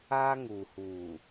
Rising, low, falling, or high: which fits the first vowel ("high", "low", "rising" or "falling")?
high